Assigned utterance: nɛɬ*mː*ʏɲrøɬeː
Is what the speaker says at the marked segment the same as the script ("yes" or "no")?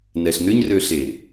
no